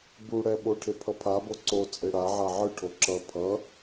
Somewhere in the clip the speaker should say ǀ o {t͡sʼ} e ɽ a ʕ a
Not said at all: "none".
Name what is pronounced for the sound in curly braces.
t͡sʼ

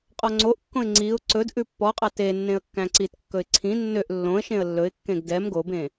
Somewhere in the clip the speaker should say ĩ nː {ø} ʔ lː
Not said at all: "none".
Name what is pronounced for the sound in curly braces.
ø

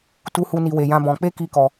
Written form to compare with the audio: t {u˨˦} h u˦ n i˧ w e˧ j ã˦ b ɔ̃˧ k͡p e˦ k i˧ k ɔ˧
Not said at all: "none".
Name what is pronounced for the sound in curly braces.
u˦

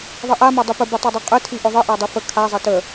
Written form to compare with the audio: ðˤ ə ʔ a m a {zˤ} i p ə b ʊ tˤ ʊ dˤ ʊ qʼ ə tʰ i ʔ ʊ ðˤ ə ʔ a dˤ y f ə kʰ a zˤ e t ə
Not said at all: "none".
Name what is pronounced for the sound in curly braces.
dˤ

